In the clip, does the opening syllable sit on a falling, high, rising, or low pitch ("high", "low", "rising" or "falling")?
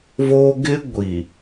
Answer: high